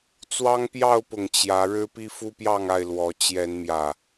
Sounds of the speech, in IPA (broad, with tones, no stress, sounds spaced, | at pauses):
t͡s w ɑ˦ ŋ p j ɑ˥˨ ʊ̯ p ʊ˨˩ ŋ t͡ɕ j ä˨˦ ɻ ɻ̩˦ p i˦ f u˦ p j ɑ˥˨ ŋ a˥˨ ɪ̯ l w ɔ˨˦ t͡ɕ j ɛ˨˦ n m j ä˨˩